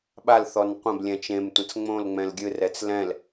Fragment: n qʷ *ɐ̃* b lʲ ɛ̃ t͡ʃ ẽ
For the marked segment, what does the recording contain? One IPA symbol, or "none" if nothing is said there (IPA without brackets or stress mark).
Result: ɐ̃